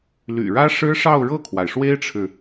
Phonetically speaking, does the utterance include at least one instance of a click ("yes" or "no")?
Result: no